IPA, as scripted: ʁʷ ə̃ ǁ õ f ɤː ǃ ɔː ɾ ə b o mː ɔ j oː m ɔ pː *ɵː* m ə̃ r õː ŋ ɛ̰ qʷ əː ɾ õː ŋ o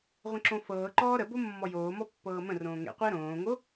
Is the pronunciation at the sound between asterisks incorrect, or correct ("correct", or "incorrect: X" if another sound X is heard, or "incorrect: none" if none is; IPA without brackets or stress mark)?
incorrect: ɤː